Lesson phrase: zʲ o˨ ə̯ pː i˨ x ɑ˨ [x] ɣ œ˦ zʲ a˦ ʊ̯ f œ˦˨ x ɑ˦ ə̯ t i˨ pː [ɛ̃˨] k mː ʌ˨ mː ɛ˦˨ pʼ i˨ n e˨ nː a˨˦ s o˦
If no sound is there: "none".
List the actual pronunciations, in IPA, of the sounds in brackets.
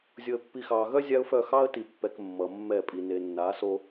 none, ɛ˨

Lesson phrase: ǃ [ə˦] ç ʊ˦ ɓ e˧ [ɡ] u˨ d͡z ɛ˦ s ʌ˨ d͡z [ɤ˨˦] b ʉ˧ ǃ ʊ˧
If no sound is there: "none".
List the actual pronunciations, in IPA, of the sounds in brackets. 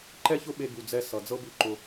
ɛ˦, ɡ, ɤ˦

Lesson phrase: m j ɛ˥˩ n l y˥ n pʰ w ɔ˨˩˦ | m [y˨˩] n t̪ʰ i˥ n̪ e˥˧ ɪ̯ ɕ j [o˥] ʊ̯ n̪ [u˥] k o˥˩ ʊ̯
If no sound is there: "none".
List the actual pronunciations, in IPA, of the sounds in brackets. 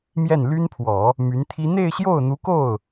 y˧˥, o˥˩, u˧˥

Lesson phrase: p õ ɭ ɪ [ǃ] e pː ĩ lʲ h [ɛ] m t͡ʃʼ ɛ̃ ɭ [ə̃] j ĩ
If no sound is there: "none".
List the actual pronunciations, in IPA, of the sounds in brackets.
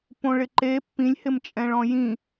ǃ, ɪ, ɔ̃

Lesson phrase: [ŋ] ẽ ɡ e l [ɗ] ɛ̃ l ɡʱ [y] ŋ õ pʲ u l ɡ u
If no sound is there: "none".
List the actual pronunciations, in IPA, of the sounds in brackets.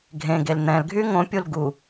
ɡʱ, n̪, y

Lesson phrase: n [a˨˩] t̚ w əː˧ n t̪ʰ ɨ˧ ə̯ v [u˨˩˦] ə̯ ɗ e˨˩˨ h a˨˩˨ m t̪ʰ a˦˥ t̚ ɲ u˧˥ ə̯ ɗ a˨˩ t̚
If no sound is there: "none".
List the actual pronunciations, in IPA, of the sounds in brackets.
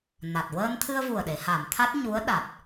a˨˩, u˨˩

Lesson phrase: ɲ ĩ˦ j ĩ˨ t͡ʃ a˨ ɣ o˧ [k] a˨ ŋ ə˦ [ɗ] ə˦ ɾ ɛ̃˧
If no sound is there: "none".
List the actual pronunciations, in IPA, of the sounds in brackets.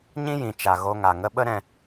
ŋ, ɓ

